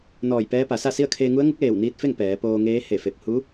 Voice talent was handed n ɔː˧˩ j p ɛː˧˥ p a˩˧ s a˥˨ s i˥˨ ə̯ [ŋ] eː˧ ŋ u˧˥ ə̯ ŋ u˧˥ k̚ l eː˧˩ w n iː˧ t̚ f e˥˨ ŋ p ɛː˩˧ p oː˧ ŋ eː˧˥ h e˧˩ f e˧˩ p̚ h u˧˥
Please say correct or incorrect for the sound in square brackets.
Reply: incorrect